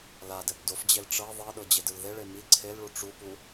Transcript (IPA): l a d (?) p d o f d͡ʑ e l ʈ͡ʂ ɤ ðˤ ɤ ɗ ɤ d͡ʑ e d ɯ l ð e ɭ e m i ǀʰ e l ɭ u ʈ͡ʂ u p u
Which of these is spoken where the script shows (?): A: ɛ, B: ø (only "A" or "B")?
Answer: A